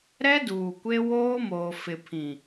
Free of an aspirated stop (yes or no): no